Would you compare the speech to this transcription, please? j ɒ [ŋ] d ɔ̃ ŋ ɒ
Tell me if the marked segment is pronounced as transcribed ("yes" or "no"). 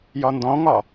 no